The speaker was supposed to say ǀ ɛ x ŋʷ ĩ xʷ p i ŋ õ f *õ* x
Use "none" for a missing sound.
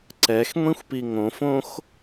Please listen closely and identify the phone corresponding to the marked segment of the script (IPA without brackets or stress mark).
õ